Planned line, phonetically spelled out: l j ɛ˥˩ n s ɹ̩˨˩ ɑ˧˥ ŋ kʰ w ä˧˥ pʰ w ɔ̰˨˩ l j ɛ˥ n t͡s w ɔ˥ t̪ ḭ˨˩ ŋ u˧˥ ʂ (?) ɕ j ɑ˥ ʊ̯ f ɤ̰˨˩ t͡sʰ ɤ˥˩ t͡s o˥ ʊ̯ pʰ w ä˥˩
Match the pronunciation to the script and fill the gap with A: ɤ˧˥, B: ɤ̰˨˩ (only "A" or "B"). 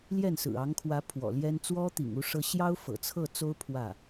A